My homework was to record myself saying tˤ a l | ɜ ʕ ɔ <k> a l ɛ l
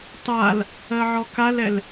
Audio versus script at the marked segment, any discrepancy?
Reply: no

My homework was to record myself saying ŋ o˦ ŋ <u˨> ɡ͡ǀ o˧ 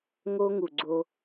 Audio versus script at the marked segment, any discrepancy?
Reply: no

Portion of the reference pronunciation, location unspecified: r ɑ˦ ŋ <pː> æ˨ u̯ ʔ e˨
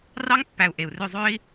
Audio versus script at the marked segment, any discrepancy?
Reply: no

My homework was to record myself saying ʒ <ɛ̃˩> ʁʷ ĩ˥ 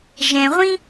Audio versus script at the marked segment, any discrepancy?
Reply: no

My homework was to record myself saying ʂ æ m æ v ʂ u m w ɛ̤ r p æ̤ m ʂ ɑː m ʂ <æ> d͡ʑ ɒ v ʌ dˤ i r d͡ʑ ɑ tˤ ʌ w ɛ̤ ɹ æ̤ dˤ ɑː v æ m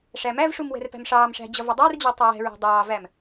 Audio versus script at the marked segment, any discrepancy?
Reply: yes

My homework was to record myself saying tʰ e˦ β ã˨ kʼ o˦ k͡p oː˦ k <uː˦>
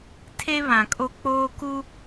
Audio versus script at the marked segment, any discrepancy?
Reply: yes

